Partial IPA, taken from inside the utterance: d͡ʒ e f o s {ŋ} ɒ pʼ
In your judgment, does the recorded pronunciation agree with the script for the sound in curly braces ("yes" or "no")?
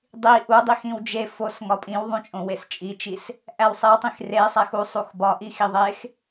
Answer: yes